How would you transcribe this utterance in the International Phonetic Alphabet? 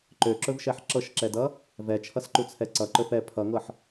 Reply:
ǃ ø ǁ ɵ v ʃ ɛ ħ ǁ ɤ ʃ ǁ ɛ d ʌ | v ɛ t͡ʃʰ ʌ s ǃ u t͡sʰ ɛ ǀ ʌ ǃ ɵ f ɛ pʰ ʌ ŋ ɤ ħ

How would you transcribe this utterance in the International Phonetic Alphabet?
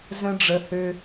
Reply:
z ə̃˨ ɖ͡ʐ ə˩ h ø˨

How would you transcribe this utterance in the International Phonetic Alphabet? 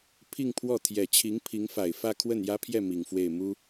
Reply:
pʰ i˥˧ ŋ pʰ w ɔ˥˩ t̪ʰ j ɛ˨˩ t͡ɕʰ i˧˥ ŋ pʰ i˧˥ ŋ f a˨˩ ɪ̯ f ä˥˧ kʰ w ə˥˩ n j ä˥ pʰ j ɛ˥˩ m i˨˩ ŋ f w e˥˩ ɪ̯ m u˥

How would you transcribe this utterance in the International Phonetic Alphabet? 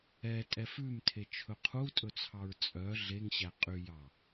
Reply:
ɛ tʼ ɛ f ʉ m tʰ e t͡ʃʰ ɵ qʰ u tʼ ɵ t͡sʰ ɑ ɹ t͡sʼ œ ɮ e ŋ ɕ æ qʼ y j ɑ

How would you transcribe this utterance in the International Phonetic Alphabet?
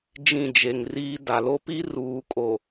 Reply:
d͡ʒ ĩ˦˨ d͡ʒ e˨ ŋ r iː˦ d a˨ l o˦ p i˦ r uː˨ kʼ o˨

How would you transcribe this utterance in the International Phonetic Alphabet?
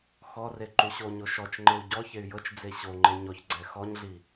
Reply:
x ɔ r e ǃ u ɕ o ɲ o ʃ ɔ t͡ʃ ŋ͡ǃ e u̯ ɟ ɔ ç e y̯ j ɤ t͡ʃ d͡z e ɕ o ŋ͡ǃ e ɲ ɔ ç ɡ͡ǀ ɛ x ɔ ɲ ɮ i

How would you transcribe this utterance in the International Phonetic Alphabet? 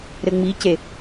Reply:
ɾ ɘ ŋ͡m i c e

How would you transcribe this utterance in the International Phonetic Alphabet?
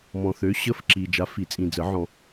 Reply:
m ɔ̃˨ θ ø˨˥ ɕ ə˧˥˧ f ǁ i˨ d͡ʒ a˨˥ f i˨˩˦ t͡sʼ ĩ˨ d͡z ə˨˩˦ ʕ ɔ̃˨

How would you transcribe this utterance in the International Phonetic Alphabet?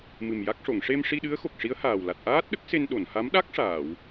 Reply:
m ɨ˨˩ m j a˦˥ k̚ ʂ o˨˩˨ ŋ ʂ e˧ m ʂ i˧ ɗ ɨ˧˥ ə̯ x o˨˩ k̚ ʂ i˧˥ ə̯ h aː˨˩ w l a˨˩ t̚ ʔ aː˦˥ t̚ ɗ ə˦˥ k̚ s e˧ n ɗ o˨˩˨ n h a˧˥ m ɗ a˦˥ k̚ ʂ aː˨˩˨ w

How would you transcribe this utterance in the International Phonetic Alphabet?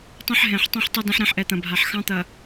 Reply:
tˤ ɛ̃˦ ħ ɦ ɛ̃˨ ħ tˤ ɛ̃˦ ħ tˤ ɐ˦ d ɛ̃˦ ħ ɾ ɛ̃˦ ħ ʔ ɛ˨ t̪ ɐ̃˨ bʱ a˨ ħ x ɑ̃˦ t̪ ɐ˨

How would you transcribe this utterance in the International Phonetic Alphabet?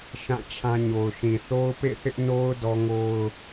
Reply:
ʃ ã˦˨ t͡ɕʰ ã˦ ɲ o˨ ʊ̯ ʃ ĩ˨ θ o˦ ʊ̯ p ḛ˦˨ θ ɪ˦ ʔ n o˦ ʊ̯ d ɔ˦ ŋ o˦ ʊ̯

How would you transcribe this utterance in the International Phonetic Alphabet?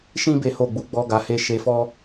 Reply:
ʃ ĩ˦ b e˦ h o˦˨ ɡ͡b u˧ ɡ͡b ɔ˧ ɡ a˧ h e˦ ʃ e˧ f ɔ˦

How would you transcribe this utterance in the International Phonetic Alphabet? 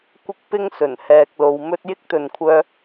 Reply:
kʷ ɪ˥ k̚ p ɪ˥ ŋ s ɵ˨˩ n h ɛː˨ k̚ l o˨˧ w m ɵ˥ t̚ j ɪ˥ k̚ t̪ ɵ˨ n kʷʰ œː˧

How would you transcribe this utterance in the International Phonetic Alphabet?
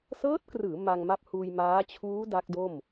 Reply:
s ɤː˦˥ t̚ k r ɯː˩˦ m a˧ ŋ m a˦˥ p̚ h uː˧ j m aː˦˥ t͡ɕʰ uː˦˥ d a˦˥ k̚ d o˥˩ m

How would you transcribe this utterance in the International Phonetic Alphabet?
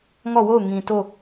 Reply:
ŋ ɔ˦˨ w o˦˨ ʊ̯ ŋ ĩ˨ t o˦˨

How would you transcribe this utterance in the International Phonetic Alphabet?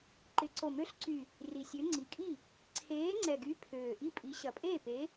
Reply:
ǃ ɪ˨˥ ǀ o˨˩ m ø˨˥ ɬ ǀ y˨˩ | r i˨˩ sʲ ø˨˥ ŋ͡ǀ i˨˩ kʼ i˥˩ | ǀʰ eː˨˥ ŋ͡ǀ ɛ˨˩ ɡ y˨˥ pʰ øː˨˩ ʔ i˥˩ pʼ i˨˥ ɕ ɐ˨˩ pʼ eː˥˩ p e˨˥

